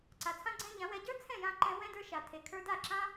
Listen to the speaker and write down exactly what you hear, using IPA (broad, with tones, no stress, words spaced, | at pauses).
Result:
ǀa˨t͡sʰã˦ɡ͡ǀɛ̃˦ ʎã˨˦wɛ˧ ɟə˞˦ t͡sʰɛ̃˦˨jã˧ ǃɛ̃˧ wɛ̃˦də˞˧ʃa˨ tʰe˨kʰə˞˧da˦˨ǁã˦